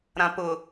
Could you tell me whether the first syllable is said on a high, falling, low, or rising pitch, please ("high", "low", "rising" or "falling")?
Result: low